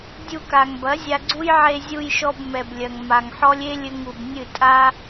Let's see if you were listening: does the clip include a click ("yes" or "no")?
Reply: yes